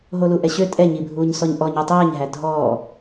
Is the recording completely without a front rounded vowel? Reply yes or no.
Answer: no